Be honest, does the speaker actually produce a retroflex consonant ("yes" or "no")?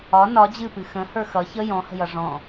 yes